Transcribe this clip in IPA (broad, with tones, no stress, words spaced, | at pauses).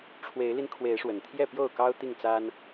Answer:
ʈ͡ʂʰwe˨˦ɪ̯li˧nkʰwe˨˦ɪ̯ʂwə˨˩n t̪ʰjɛ˥˨ pjo˥˨ʊ̯kɑ˦ʊ̯t̪i˥˨ŋt͡sa˦n